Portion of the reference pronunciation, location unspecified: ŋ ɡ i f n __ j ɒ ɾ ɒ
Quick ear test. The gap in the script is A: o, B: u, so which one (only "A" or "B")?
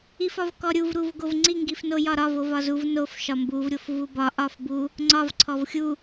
A